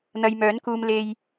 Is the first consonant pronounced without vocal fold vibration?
no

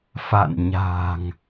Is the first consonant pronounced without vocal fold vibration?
yes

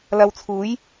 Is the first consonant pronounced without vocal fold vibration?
no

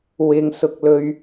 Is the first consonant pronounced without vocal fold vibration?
no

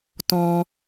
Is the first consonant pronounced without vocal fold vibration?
yes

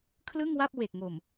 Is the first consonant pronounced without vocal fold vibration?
yes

